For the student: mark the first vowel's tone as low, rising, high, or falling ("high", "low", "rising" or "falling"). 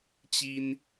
high